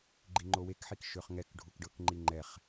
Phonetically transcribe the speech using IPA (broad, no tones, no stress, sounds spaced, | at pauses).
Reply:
ɡ͡ǃ i ŋ͡ǃ o w e k ħ i k ʃ ø χ ŋ ɛ k ɖʱ u k ɖ ɤ k ŋ͡ǃ i ŋ͡ǃ ɛ χ